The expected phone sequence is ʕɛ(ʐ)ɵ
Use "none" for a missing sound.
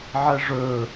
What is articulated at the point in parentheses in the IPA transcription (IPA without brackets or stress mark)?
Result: ʐ